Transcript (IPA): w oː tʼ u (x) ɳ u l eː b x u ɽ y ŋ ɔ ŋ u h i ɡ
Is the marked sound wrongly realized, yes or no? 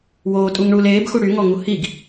yes